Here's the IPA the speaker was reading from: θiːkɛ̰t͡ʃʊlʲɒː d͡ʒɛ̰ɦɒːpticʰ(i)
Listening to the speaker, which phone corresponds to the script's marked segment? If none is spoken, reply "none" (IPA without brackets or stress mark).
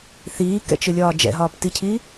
i